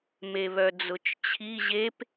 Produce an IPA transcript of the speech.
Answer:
meβœd͡zʊt͡ʃt͡ɕʰi ʑep

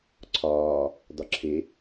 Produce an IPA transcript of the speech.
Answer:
ǀʰɒː | dɒǁʰe

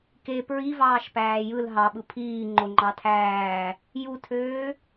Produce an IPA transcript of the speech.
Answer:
ke pɹivɑːʃ pæːjɯl ɦɑɓɯ pʰiː ŋ͡ǃoŋ͡ǃɑtʰæː | jutʰøː

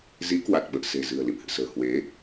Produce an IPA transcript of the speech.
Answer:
zi˨˦kwa˨˩t̚ɓə̰ː˧˨ se̤˨˩zɨ̤˨˩ə̯ lḭ˧˨mhɨ̰˧˨sə̤ː˨˩ hwe˨˦

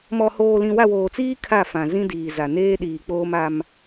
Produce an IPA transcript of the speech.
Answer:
mɔ˨hoː˨lĩ˨ wa˦˨woː˨t͡siː˦ kʰa˦˨fã˨ zĩ˦diː˨ za˨neː˦ ɗiː˨k͡poː˦ma˦m

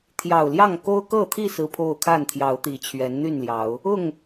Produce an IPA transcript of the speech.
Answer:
t̪ʰjɑ˨˩ʊ̯ljɑ˥˨ŋ ko˦ʊ̯kɤ˥˨t̪ʰi˥˨ sɹ̩˦pʰo˥˨ʊ̯ kʰa˥˨nt̪ʰjɑ˨˦ʊ̯t̪i˨˩t͡ɕʰɥɛ˨˦n n̪y˥˨nljɑ˨˦ʊ̯ | ʊ˥˨ŋ

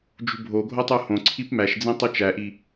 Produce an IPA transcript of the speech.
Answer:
d͡ʒṳbʱoɡʱo tˤuhõǀʰip mæʃd͡zĩ tˤut͡ʃæʔi

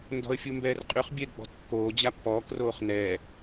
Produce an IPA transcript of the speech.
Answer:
ndɔ̤ə̯fʲumbɛːrqʼyχ bʲɛɡ͡bɔ̤tkːoː d͡ʑapːɔːk roːχnɛː

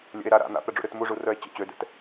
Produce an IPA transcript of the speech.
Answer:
lʲə̰e̯ ɾaɾa̰ n̪a̰pɾə ɖ͡ʐṵɾøtmuʐu rœe̯t͡ɕə̰ t͡ɕødɛ̰t

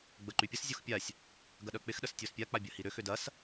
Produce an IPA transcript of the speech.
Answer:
ɡ͡bəǃypʲəs zʲoxpʲasʲ | ɡɐɗœk͡pɪx ɗəstʲospʲa k͡pabʲɐhiɾʏ xʏdɐs

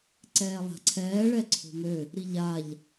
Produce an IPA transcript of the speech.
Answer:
ǀɛːlˠa̤ǀʰɛː ɭɛǀʰo̤mø | ɾiʎaʎ

